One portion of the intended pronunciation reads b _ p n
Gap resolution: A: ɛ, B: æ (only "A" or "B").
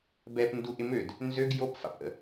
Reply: A